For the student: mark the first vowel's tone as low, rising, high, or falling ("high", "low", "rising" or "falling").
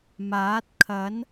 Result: rising